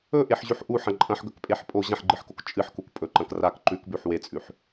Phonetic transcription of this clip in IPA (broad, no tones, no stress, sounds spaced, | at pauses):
ɵ ʔ e ħ ʑ ʉ ħ ʔ u ħ ɐ̃ ǃʼ ɐ̃ ħ ɡ ɵ k pʼ e ħ pʼ o ʑ ɐ̃ ħ ɡ͡ǃ ɨ ħ k o k t͡ʃʼ ɨ ħ k u k pʼ ɵ ǃ ɐ̃ k r a k ǃ ʉ k b ʉ ħ w e t͡sʼ ʉ ħ